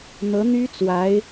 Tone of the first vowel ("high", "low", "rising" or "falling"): rising